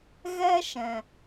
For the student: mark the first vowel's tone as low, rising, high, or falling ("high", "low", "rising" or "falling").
high